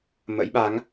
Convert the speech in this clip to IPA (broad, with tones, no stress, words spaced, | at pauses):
mə̰˧˥jɓa˨˦ŋ